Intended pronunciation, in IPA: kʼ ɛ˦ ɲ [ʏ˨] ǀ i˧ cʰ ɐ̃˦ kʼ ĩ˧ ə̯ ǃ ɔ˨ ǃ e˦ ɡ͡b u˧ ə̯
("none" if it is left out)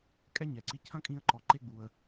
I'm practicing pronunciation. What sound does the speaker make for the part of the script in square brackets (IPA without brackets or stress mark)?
ɛ˨